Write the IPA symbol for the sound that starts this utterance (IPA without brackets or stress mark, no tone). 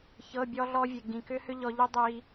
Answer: ç